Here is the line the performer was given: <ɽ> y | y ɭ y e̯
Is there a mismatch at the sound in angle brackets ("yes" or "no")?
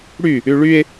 no